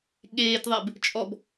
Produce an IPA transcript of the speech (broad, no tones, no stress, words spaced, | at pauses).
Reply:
ɠeːtðˤeb | t͡ʃʼɔb